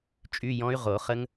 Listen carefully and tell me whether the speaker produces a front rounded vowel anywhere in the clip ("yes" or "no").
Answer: yes